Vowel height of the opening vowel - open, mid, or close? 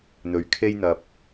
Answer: mid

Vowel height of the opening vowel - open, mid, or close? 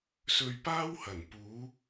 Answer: mid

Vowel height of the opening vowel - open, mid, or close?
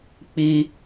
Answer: close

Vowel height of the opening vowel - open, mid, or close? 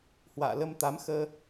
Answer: open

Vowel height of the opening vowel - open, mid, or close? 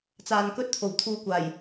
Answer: open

